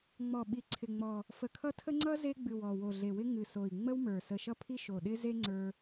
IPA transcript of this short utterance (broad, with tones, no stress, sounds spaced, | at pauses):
ŋ͡m ɔ˨˩ ɓ i˨˩ ǀʰ ɪ˨˩ ŋ͡m ɔ˨˩ | f ə˨˩ kʰ ʌ˥ tʰ ə˥ ŋ͡ǀ ʌ˥ z e˥ ɡ͡b ɨ˨˩ w ɔ˨˩ w o˨˩ ɮ e˨˩ w ɪ˥ ŋ ɨ˨˩ s o˨˩ i̯ ŋ͡m ə˥ w m ə˞˨˩ s ə˨˩ ʃ ʌ˥ pʰ i˥ ʃ o˨˩ ɗ ɪ˥ z e˥ ŋ͡ǀ ə˞˥